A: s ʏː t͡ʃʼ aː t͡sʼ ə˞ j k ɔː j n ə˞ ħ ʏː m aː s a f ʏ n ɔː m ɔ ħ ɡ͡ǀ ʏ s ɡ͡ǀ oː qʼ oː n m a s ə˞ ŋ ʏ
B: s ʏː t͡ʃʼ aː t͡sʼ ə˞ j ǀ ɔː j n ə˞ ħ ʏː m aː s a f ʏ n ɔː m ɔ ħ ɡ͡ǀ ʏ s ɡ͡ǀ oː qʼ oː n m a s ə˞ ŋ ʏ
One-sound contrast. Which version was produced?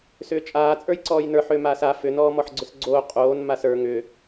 B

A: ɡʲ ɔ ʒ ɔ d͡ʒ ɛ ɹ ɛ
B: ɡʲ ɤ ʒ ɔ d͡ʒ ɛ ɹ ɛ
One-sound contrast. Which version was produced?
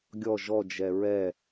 A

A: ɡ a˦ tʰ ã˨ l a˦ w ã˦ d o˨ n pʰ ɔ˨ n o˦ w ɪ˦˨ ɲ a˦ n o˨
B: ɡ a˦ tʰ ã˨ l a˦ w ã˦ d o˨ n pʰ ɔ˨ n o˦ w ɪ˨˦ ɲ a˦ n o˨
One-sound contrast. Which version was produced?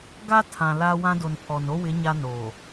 B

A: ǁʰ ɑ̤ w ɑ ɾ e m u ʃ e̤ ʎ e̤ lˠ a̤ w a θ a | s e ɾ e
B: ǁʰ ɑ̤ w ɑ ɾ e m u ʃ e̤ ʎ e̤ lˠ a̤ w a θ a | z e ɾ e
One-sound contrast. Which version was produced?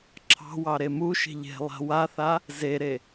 B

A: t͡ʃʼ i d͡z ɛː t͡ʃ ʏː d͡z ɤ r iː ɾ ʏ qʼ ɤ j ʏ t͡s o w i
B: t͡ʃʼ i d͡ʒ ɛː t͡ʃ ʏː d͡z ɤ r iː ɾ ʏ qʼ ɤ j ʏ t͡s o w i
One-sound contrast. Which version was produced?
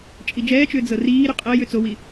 B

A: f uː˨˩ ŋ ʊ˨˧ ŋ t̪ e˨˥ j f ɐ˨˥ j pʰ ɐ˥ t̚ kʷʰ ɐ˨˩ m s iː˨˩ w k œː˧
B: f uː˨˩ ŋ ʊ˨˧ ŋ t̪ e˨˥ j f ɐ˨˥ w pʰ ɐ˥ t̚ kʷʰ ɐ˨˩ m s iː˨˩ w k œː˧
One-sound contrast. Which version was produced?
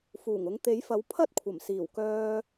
B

